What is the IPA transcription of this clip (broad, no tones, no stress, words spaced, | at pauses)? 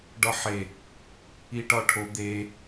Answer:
ɖɒħe | iʈɒʈʰo d̪e